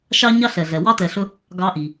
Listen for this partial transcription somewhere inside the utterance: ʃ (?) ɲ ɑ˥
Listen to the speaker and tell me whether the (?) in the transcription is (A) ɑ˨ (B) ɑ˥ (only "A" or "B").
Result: B